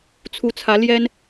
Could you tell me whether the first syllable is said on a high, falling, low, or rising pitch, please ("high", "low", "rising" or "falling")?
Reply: rising